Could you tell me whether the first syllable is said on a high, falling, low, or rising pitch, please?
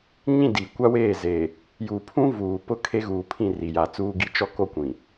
falling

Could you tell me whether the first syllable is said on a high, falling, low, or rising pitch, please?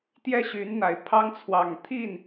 falling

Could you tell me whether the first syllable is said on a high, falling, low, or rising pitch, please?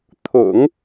low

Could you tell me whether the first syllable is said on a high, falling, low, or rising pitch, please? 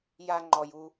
high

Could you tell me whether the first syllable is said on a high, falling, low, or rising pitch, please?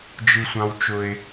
high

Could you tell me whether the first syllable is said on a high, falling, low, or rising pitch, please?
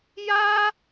high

